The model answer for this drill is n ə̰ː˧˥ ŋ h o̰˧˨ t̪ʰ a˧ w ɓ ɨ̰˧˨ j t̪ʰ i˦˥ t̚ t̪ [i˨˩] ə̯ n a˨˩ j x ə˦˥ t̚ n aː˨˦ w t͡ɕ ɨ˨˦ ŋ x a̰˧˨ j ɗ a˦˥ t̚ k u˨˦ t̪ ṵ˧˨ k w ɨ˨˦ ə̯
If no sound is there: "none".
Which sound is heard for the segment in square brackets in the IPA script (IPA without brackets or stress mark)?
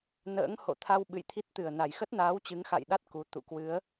ɨ˨˩